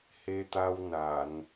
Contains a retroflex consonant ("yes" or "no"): no